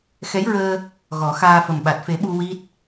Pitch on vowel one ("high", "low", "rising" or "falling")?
rising